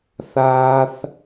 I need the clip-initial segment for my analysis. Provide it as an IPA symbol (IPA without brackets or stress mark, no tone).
θ